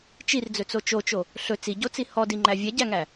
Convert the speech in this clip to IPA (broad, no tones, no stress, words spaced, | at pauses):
t͡ʃird͡zɵt͡so t͡ʃot͡ʃo | ɬɵ t͡siɟot͡si hɔdiŋ͡ǃæ vʲɛɟæŋæ